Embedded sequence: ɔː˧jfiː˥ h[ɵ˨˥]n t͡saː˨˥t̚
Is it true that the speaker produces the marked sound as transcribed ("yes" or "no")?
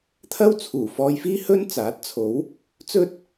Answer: no